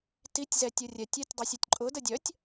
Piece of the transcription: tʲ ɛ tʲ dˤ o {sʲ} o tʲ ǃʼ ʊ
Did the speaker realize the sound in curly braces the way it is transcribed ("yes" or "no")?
yes